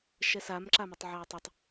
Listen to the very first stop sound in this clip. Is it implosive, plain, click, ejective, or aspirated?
click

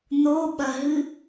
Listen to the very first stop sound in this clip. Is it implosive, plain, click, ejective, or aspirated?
implosive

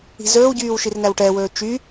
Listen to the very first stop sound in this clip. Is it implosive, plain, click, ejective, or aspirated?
plain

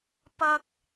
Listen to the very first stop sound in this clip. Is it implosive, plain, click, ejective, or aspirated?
plain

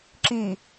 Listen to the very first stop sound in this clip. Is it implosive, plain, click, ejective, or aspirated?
click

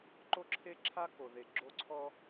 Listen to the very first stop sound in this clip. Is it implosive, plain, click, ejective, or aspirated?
click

